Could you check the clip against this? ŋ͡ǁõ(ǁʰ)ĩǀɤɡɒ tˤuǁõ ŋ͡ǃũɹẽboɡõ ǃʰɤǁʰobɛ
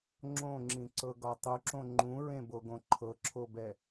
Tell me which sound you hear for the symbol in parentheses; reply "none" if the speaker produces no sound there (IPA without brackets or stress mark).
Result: ŋ͡ǁ